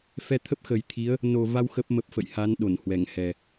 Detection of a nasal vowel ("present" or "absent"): absent